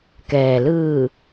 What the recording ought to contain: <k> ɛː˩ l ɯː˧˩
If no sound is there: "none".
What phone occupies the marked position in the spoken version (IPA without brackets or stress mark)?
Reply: k